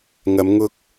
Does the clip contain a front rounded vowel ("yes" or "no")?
no